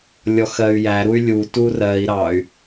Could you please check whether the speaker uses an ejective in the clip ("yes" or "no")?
no